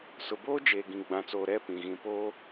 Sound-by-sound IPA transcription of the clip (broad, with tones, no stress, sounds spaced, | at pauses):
s ʊ˨ b oː˦ d͡ʒ eː˨ ɡ ĩ˨ ɡ͡b ã˨ t͡s oː˨ ɾ ɛ˦˨ p ĩ˨ ɣ ĩ˨ p oː˦